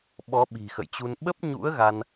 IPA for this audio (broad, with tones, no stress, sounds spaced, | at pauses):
ɓ ɔ˨˦ ɓ i̤˨˩ x ə̰˧˨ j t͡ɕ u˧ n ɓ ə˦˥ p̚ ɲ ṵ˧˥ ə̯ ɣ a˧ n